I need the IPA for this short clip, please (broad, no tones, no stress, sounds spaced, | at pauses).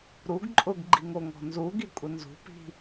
ɾ u ɡ ǃʼ ʊ ɡ ɡ͡ǃ i ŋ o ŋ ɔ̤ n z u ɡ i kʷʼ ɪ n z ṳ p i̤